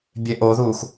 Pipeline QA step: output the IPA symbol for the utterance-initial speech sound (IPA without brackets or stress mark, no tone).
bʲ